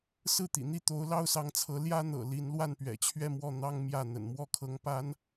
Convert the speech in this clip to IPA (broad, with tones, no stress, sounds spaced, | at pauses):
s ɹ̩˥˩ t̪ ḭ˨˩ n̪ i˥˩ t̪ o˧˥ ʊ̯ l ɑ˥ ʊ̯ s ɑ˧˥ ŋ t͡sʰ ɤ˧˥ l j ä˥ n̪ ɤ̰˨˩ l i˧˥ n l w a˥˩ n p ɥ ɛ̰˨˩ t͡ɕʰ ɥ ɛ˥˧ m w ɔ˥˩ n̪ ɑ˥ ŋ m j ä˥˩ n̪ ə̰˨˩ n m w ɔ˥˩ kʰ ɤ˧˥ ŋ p a˧˥ n